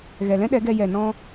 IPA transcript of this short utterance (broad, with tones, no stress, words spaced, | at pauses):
ɣɛ˨ lɛ̃˦ɗɛ˨˦ɡɛ˧ jɛ˨nɔ̃˧